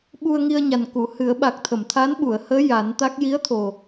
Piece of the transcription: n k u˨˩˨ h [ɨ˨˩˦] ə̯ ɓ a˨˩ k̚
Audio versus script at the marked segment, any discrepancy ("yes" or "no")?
no